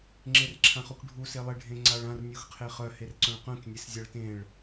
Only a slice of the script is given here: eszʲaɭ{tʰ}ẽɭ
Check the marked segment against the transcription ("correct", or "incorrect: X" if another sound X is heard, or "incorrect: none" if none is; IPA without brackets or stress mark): incorrect: t